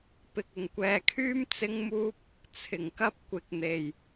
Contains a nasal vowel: no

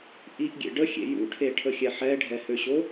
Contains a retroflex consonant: yes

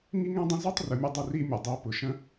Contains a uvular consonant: no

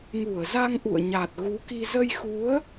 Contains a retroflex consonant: no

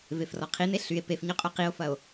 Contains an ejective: yes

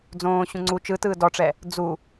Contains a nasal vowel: yes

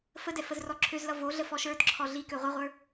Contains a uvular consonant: yes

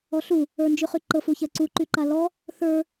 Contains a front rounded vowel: yes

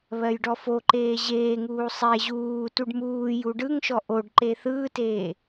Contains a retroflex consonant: yes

